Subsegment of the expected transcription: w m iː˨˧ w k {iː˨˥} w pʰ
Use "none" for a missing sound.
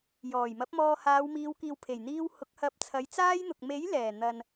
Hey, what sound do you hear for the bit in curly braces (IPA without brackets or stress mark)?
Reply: iː˨